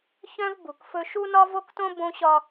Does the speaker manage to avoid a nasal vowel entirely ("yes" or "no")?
no